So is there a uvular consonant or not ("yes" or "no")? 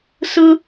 no